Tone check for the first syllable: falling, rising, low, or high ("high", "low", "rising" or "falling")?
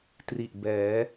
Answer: low